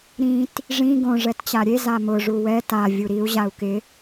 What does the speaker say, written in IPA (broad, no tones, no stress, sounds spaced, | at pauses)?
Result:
ɾ ĩ t | ʐ ĩ ɡ õ ʐ ɛ t t͡ɕ a ɾʲ e z a m ʊ ʐ u w ɛ t a vʲ u ɾ i u̯ ʑ a u̯ k ɪ